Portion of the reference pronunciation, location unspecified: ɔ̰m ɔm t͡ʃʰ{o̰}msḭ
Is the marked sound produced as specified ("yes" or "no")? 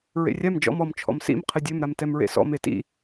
no